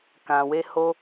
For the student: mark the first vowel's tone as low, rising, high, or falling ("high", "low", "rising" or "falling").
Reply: low